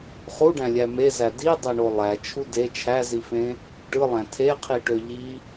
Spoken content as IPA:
χ u ɖ æ̃ lʲ æ m e z æ d i dˤ e ɳ o lˠ æ t͡ʃʰ u d e t͡ʃʰ æ z i f ẽ | ʈ ɯ lˠ æ̃ tʰ e qʰ i ʈ ø ʎ i

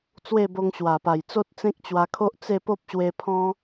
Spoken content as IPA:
t͡s w e˥˧ b o˧ ŋ ɕ w a˨˩ p a˨˩ j t͡s o˦ t̚ t͡s ẽ˦ k̚ t͡ɕ w a˧ kʰ o˦ ʔ t͡s e˥˧ p o˦ p̚ ɕ w e˧ pʰ ɔ̃˦

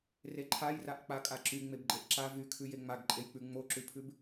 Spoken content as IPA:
r e ǃʰ a j r a ʔ k͡p a kʼ a ǁ y ŋ͡m e b ɡ͡ǃ e ʔ ǁ a v y kʰ ʉ j e ŋ͡m a ɡ ǃʼ e j k͡p ʉ ŋ͡m o ǁ ʉ pʰ ʉ b

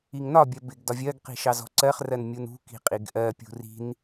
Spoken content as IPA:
i ŋ n ɒ bʲ ɜ b ɪ ɡ d ɒ vʲ ɜ ɡ q i̤ ʃ ɑ z ɔ̤ ǀ ɜ χ r ɜ n mʲ u n ṳ k i̤ qʼ i ɡ ʔ ɜ pʲ ṳ r i̤ n

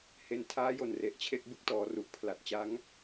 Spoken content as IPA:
h e˧ n tʰ aː˦˥ j o˨˩ n r e˨˩ ʔ t͡ɕʰ e˥˩ k̚ b ɯ˥˩ k̚ t ɔː˩˦ r u˨˩ ʔ pʰ l a˨˩ t̚ t͡ɕ a˦˥ ŋ

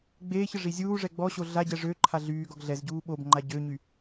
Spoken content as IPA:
ɡ͡b eː ç ə ʐ i zʲ uː ʐ ɛ ɡ͡b ɔ ɕ o ɮ a ɟ ɛ ʐ ø ǃʰ a ɮ yː ɡ ɔ ɡ ɮ ɛ z ɟ uː ɓ o b ŋ͡ǃ a ɟ ø ɲ y

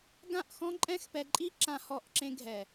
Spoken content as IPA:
ɡ ã˦˨ ʔ x ɔ̃˦ ǃʼ ɛ̃˦ x p ɛ˧ ǃʼ i˦ ǁ ã˧ h ɔ˧ ʔ ǁ ẽ˧ ɡʱ ɛ˨

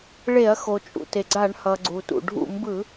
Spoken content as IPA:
ɭ e˧˩˧ ɐ̯ x o˩ t͡ʃʼ ṵ˩ t e˩ ɡ͡ǀ a˧˩˧ ɳ h ʌ˩ ɡ͡ǀ u˩ t ṵ˩ ɖʱ ṵ˧˩˧ m b ɯ˧˩˧

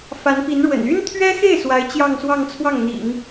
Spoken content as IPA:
f a˧˥ n p i˧˥ n ɻ w ə̰˨˩ n y˥ n t̪ʰ ɥ ɛ˥ x e˥˩ ɪ̯ s w a˧˥ ɪ̯ t͡ɕ j ɑ˥˧ ŋ s w ɑ˥˧ ŋ t͡sʰ w ɑ˥˩ ŋ n̪ ḭ˨˩˦ ŋ

